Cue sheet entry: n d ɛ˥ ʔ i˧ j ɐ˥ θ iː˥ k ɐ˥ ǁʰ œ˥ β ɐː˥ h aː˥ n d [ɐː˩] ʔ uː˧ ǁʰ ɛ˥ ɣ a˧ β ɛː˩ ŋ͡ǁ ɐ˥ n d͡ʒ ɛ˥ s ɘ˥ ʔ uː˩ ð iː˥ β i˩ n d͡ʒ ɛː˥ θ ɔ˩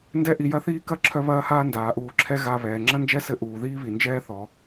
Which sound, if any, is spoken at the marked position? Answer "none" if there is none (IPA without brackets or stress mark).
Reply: aː˩